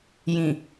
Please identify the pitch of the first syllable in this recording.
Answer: low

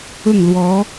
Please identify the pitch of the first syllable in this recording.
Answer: falling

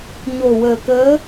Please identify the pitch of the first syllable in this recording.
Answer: low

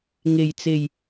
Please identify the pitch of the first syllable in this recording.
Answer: low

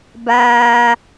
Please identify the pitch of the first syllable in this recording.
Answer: high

